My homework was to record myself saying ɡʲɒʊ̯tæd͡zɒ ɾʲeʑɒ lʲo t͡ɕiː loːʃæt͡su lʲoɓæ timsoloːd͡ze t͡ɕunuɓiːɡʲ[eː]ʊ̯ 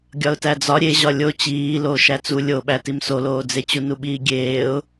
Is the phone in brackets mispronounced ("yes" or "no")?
no